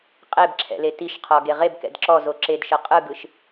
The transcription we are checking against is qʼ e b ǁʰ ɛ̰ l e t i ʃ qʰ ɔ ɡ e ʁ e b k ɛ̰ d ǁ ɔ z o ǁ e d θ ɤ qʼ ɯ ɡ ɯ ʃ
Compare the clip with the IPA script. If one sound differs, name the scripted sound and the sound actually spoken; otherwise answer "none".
θ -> ʃ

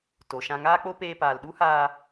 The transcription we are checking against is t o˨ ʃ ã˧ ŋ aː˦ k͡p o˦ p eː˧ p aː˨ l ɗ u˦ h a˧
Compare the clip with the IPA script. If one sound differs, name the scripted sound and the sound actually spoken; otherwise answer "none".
a˧ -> aː˧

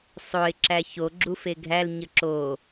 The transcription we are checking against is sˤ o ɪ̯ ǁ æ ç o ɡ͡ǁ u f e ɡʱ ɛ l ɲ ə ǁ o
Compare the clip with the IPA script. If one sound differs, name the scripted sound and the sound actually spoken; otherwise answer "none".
ɛ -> æ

